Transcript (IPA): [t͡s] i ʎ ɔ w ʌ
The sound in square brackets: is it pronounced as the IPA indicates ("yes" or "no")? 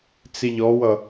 yes